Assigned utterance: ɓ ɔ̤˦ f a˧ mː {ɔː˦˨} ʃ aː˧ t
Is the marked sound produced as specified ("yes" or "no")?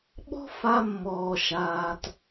no